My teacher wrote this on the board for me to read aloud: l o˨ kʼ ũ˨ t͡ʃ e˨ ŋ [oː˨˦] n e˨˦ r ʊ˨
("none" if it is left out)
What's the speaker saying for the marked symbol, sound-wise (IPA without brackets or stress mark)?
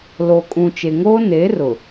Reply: oː˦